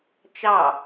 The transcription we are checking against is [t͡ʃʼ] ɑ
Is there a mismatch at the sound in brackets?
yes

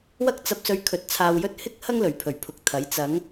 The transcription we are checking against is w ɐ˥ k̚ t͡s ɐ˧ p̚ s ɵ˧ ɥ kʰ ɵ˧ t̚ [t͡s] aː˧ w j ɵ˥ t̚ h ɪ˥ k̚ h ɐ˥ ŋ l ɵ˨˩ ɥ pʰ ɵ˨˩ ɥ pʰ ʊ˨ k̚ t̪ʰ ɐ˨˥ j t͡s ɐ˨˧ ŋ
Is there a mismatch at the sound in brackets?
yes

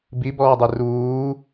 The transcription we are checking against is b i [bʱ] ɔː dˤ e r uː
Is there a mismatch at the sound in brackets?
yes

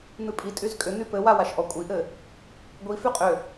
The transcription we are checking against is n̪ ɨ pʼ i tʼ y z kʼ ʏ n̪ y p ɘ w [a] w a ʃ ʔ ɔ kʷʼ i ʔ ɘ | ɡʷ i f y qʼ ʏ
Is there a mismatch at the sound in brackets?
no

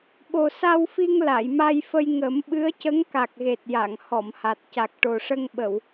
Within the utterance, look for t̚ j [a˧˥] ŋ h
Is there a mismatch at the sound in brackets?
yes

